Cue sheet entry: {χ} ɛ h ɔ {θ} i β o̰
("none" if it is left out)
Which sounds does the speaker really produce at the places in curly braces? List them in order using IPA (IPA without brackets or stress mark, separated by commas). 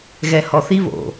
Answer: ɣ, θ